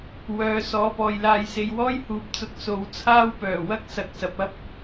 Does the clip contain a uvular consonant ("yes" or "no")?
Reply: no